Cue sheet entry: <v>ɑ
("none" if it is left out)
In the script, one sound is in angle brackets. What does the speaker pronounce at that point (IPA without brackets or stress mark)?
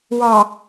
w